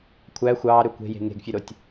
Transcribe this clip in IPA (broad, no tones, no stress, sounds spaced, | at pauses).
kʷʰ æ xʷ ɑː ɾ ø kʷ e̤ j e̤ ŋ e̤ ɡ fʲ ø ɾ o tʲ